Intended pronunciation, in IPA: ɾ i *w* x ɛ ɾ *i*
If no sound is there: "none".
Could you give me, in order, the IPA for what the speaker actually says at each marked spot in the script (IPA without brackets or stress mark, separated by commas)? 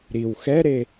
w, e